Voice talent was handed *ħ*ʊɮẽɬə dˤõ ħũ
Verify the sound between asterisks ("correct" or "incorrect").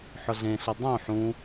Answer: correct